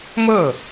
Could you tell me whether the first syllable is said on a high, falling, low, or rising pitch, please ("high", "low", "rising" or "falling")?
falling